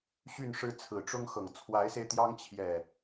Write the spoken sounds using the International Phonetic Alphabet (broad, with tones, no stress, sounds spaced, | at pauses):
ɕ y˥˨ n ʂ ɻ̩˦ t͡sʰ ɹ̩˨˩ ʈ͡ʂ ʊ˦ ŋ x ɤ˨˩ ŋ t͡sʰ w a˨˦ ɪ̯ s e˧ ɪ̯ t̪ j ɑ˦ ŋ t͡ɕʰ j ɛ˨˩